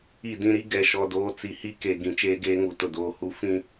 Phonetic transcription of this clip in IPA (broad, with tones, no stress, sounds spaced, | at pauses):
i˦˨ d ĩ˦ ɾ i˦ ɡ ɛ˨ ʃ ɔ˨ d oː˦ t͡s i˨ h i˦ k e˨ ɡ ĩ˨ t͡ʃ eː˦ ɡ eː˦ ŋ u˨ t ʊ˨ d oː˨ h u˦ f ĩ˦